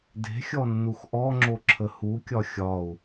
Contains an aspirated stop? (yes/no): yes